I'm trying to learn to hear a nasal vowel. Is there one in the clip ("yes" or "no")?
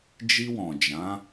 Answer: yes